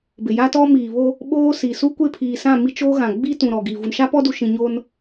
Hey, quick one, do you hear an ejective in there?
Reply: no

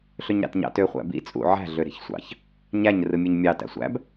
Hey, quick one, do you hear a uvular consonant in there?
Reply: yes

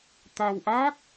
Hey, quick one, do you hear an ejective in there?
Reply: no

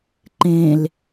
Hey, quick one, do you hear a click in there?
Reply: yes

